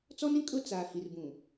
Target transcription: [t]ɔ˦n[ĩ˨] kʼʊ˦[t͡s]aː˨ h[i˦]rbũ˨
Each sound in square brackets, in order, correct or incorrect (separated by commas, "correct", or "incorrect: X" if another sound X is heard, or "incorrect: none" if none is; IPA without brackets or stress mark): incorrect: t͡s, incorrect: ĩ˦, correct, incorrect: i˨